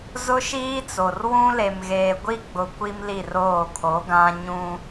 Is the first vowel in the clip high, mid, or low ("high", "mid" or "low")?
high